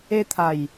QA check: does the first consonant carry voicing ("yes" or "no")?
no